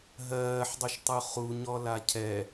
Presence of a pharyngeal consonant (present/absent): present